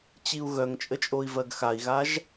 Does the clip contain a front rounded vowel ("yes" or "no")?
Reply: yes